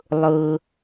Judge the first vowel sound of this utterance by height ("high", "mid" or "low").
high